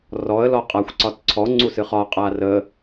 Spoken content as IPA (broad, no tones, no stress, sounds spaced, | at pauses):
r ɔ ə̯ l ɔ qʼ a xʷ ǀ ɒ t ǀʰ ɔ ŋ͡ǀ u s ɨ χ ɒ qʼ a r ə